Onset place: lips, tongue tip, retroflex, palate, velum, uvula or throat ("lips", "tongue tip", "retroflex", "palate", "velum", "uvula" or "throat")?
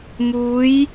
lips